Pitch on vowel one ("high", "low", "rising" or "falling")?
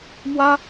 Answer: high